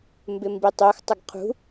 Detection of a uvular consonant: present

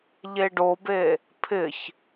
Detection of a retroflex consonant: present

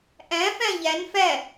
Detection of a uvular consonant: absent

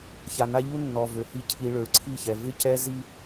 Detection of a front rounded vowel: present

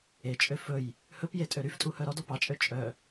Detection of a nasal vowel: absent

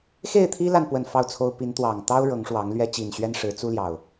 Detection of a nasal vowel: absent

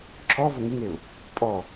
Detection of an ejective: present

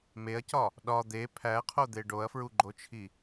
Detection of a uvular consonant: present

